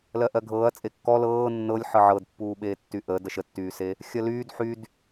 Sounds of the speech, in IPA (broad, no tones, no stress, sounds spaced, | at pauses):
l ɜ ʔ ɜ ɡʱ ɤː ɐ̯ t͡sʼ e kː ɔ l ɤː nː ɤ lʲ ħ ɤ ʕ ɤ d pː uː ɓ eː tː y ʔ əː d ɜ ʃ ə tː yː s e | xʲ ɜ l yː d ħ y d